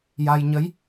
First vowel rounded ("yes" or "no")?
no